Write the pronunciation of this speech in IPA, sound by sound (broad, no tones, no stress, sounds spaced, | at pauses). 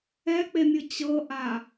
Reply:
ɛ k͡p e mʲ ɯ t͡ɕ ɤ ʔ a